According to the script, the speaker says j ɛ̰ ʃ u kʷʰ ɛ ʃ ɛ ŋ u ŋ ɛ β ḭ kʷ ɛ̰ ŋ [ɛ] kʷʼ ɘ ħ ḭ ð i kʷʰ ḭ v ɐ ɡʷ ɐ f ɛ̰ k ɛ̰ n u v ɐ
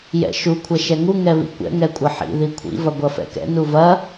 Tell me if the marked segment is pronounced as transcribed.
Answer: yes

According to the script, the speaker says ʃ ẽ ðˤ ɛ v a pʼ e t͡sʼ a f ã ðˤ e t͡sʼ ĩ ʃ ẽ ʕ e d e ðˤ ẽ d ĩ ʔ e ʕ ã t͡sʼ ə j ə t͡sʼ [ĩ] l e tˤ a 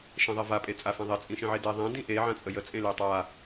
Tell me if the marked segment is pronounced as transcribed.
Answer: no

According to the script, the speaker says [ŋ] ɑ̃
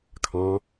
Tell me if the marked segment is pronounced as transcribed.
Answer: no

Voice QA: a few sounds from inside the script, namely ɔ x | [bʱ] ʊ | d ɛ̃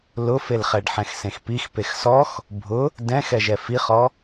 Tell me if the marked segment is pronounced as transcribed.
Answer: yes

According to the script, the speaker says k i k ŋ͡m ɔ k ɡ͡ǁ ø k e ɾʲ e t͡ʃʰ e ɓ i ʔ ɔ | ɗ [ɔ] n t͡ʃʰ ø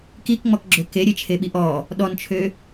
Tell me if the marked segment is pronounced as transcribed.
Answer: yes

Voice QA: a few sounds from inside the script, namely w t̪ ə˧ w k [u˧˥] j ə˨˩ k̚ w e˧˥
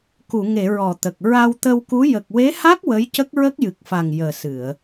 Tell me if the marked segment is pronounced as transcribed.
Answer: yes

